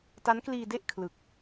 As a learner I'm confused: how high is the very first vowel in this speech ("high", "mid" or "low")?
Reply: low